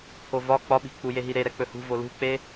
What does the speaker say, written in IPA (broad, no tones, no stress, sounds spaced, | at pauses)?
pʰ o v ɒ k͡p ɒ ɓ i̤ k͡p u j e ɦ i ɾ e ɾ ɛ k͡p ɵ h ṳ v o l ṳ k͡p e